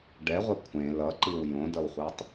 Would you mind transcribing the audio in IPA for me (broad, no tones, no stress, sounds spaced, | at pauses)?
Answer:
ɖ ɛ ʁʷ ɛ kʷʰ ẽ l ʌ ǃ i w j õ d ʌ w χʷ ɛ tˤ